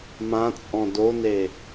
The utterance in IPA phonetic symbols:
m ã t͡sʼ ɔ̃ d o n e

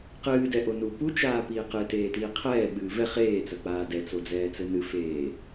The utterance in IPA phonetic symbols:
q ɨː d ɛ ʔ o n u p u t͡ʃ aː p iː q ɨ t eː t iː qʰ ɛː ɓ ɨː v ɛ χ eː t͡s ɐ k͡p aː d ɛ t͡s o d͡z ɛː t͡s ɘ n ɨ f eː

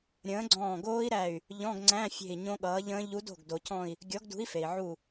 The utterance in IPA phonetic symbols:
ɾʲ ə̃ː˨˥ ɡ͡ǀ ɔ̃ː˧˩ ɡ oː˦˥ i̯ ɾ æ˧˩ y̯ | ʎ ɔ̃˧˥˧ ɡ ŋ͡ǀ æ̃˧˥˧ fʲ e̤˧˩ i̯ ɲ õ˦˥ ɠ ʌː˨˥ ʎ ə̃ː˦˥ ʎ u˨˥ d o̤˧˩ ɡ d o˩ cʰ ɔ̃˧˩ i̯ | ɡʲ ɔ˨˥ ɡ d ṳ˨˥ i̯ f e˩ i̯ ʕ u˧˩

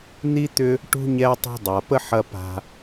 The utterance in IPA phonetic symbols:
n̪ i˥ t̪ ʏ˦ | ʈ ṳ˥ ɲ ɛ˦ tˤ ɛ̤˦ dˤ a˩ p ə˥ ħ ɐ˦ p a̤˨

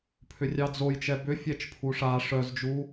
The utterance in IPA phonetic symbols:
pʰ ʏ rʲ ɑ d͡z o j t͡ʃ ɛ b ʏ fʲ ɛ t͡ʃ pʰ u ʂ a ʂ œ z d͡ʒ u

